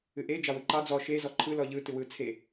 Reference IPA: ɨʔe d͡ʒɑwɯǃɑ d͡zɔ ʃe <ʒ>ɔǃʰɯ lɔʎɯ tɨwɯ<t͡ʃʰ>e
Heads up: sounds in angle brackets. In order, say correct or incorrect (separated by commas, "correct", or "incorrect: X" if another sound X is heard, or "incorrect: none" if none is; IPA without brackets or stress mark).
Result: incorrect: z, incorrect: t͡sʰ